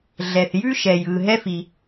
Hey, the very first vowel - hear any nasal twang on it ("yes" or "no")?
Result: no